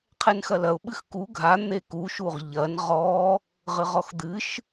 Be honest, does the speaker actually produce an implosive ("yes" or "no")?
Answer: yes